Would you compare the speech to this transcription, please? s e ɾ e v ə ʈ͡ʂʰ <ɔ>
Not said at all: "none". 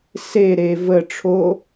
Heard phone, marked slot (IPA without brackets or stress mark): o